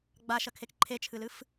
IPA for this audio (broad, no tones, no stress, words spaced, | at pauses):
ɡ͡baʃɐkʰek ǃʰet͡ʃʰɨlɨf